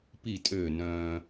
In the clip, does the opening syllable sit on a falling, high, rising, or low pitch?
falling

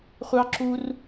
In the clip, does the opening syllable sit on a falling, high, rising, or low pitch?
high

